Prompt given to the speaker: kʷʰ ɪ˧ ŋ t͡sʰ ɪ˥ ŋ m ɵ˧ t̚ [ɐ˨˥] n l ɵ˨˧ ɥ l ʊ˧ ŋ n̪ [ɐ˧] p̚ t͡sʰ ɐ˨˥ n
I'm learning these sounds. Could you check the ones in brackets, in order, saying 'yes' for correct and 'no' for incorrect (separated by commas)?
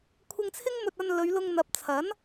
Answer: no, no